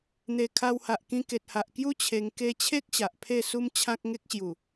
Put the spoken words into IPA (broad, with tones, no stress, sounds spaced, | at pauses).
n̪ e˨˩ kʰ a˧ w h a˨ ʔ k ĩ˧ k e˨ t̚ h a˨ ʔ k j u˦ t͡ɕʰ e˧ ŋ k e˧ t͡ɕʰ e˦ k̚ ɕ a˨ ʔ pʰ e˥˧ s u˦ m t͡ɕʰ ã˦ k̚ ŋ e˦ k̚ ɕ j u˨˩